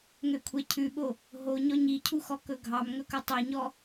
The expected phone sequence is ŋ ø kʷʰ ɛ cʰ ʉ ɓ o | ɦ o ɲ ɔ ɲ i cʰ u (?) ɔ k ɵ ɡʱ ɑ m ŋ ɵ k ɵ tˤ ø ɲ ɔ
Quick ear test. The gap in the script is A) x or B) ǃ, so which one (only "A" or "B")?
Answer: A